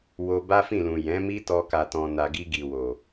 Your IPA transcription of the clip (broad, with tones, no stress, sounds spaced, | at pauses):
w o˧ b a˦ f ĩ˦˨ l ũ˨ j ɛ̃˨˦ m i˦ t ɔ˧ k a˨ t ɔ̃˨ n a˨ ɡ i˧ ɡ i˨ w o˨